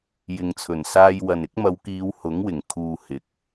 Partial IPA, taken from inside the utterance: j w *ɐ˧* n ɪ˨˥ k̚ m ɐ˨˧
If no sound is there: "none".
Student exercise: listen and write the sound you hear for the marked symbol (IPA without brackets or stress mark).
ɐ˨